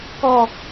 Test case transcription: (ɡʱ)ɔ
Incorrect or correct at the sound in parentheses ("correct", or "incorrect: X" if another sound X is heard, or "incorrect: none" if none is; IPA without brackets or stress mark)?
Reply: incorrect: k